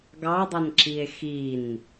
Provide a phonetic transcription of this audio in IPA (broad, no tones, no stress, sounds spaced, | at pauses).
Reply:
ɡ ɑ dˤ ʌ n ǁ i e̯ x i n